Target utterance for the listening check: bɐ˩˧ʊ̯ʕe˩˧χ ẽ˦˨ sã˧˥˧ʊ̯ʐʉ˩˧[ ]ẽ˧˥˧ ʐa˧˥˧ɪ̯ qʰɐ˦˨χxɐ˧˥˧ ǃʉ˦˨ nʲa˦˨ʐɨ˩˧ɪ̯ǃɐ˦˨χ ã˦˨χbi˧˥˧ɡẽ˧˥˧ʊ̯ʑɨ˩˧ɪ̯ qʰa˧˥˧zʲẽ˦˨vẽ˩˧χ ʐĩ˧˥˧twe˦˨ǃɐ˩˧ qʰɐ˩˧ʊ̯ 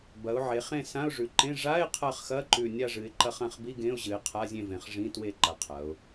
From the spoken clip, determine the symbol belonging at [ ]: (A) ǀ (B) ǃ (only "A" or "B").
B